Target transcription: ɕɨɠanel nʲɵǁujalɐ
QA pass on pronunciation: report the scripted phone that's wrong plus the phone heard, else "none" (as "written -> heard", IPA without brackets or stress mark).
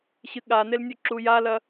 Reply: none